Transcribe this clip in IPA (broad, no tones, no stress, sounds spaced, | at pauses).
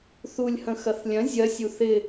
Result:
θ u lʲ h ə̃ x ɐ θ lʲ ɐ̃ zʲ ɐ sʲ u θ ɪ